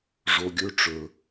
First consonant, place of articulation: retroflex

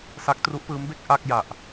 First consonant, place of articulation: alveolar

